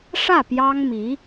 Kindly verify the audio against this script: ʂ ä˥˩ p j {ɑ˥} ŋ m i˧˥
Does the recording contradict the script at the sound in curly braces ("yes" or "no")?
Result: no